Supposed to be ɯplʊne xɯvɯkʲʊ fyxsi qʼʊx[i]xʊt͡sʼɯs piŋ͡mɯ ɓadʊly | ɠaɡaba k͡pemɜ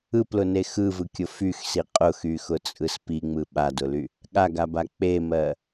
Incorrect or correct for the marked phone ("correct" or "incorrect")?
incorrect